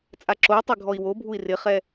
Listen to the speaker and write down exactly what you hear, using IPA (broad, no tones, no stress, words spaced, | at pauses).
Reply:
t͡sʼaǁou̯tˤe ɡʱɔi̯wobʱui̯ rɪχɛ